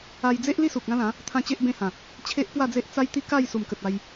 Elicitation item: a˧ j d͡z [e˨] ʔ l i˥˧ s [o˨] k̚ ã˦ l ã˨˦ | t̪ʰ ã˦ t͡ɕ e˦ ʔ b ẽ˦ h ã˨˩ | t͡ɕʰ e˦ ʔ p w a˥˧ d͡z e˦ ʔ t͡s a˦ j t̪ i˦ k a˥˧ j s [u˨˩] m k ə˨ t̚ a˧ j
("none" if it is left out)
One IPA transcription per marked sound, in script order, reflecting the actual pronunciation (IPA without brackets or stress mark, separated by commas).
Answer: e˦, u˨, u˨˩